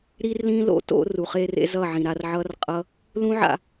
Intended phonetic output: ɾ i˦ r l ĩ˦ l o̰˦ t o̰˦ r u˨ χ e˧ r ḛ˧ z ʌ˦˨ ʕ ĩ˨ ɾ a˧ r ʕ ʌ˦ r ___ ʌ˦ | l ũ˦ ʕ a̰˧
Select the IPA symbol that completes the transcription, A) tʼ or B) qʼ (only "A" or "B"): B